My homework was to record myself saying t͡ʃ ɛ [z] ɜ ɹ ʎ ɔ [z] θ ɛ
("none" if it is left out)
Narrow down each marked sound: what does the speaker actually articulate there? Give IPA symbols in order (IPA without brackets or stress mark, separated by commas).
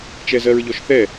z, ʃ